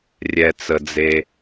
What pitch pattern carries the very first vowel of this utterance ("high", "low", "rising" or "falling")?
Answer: low